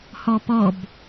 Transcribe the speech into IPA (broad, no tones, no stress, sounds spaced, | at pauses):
h ɔ p ɔ b